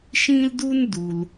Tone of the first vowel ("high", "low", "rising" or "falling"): high